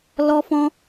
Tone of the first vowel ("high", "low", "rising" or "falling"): high